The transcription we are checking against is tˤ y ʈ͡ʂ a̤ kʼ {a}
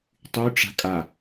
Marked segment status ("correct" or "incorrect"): correct